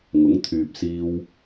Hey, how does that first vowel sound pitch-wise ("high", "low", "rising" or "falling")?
rising